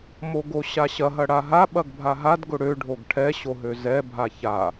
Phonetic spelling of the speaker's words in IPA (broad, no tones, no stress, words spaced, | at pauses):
moɡoɕaɕɐ ɦɐɽaɦa ɓɐɡbʱaɦad ɡʊɽø ɖʱoɡʈʰɛ ɕoɦøzɛ bʱaça